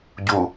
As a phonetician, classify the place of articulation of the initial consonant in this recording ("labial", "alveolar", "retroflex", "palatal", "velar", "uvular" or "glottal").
palatal